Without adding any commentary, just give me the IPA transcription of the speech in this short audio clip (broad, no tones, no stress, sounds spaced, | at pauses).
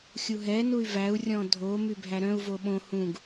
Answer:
xʲ u ɦ ɛ n u y̯ v æ u̯ rʲ ɔ̃ dʱ o m y bʱ æ ɾ œ̃ u̯ v o ɓ õ h ũ ɡ